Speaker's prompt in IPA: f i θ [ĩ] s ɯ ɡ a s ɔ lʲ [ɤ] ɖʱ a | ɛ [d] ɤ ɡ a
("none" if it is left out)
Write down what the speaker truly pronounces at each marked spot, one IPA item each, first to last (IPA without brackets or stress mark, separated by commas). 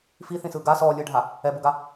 ĩ, ɯ, b